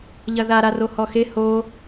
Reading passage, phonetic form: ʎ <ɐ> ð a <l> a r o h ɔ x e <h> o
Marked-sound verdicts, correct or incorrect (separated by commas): correct, incorrect, correct